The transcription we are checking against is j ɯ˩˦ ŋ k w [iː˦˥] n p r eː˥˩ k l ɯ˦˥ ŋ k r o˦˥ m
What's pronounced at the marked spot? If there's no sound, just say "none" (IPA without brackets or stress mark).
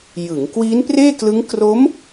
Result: iː˦˥